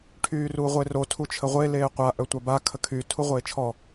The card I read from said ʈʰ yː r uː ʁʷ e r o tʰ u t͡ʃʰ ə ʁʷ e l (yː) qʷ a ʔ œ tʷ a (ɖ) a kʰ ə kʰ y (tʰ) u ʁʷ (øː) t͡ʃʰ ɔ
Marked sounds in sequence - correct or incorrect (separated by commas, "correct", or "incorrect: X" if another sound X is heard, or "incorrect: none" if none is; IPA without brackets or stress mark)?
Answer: incorrect: eː, incorrect: b, correct, incorrect: eː